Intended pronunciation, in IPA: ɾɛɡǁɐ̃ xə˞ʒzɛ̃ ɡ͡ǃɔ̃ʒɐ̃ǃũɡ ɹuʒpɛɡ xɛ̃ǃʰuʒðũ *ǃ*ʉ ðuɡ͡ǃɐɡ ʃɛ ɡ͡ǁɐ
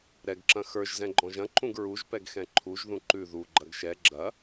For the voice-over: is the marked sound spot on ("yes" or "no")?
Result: yes